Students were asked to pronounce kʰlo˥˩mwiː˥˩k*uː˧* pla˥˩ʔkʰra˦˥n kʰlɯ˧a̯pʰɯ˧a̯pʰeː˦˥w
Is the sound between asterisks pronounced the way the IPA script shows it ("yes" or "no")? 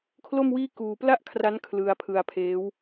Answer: yes